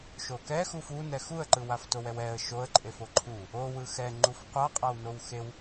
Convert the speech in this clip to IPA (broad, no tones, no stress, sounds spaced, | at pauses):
ʃ o k ɛ x u f u n ɛ x u ə̯ ǃ ɯ w a f t o w ɛ w ɛ ə̯ ʃ o ə̯ ǃʼ e f o ǃʰ u | o w ɯ x ɛ ŋ͡ǃ u f qʷ a qʼ a w n o w x e w